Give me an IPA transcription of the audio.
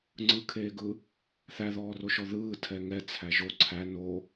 ŋ͡ǀɯkʰeːɡɯ | θæðɔːroʃɔ ðɯː tʰɛŋɛ t͡sʰæʒo ǀʰæ no

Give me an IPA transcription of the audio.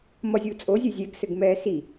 mʌzʲuːt͡sʼozʲɘ zʲɛɡsɘɡ mɛːsi

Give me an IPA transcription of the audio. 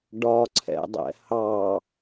ɖɒǀʰɛ̰dˤɛ̰ hɑ

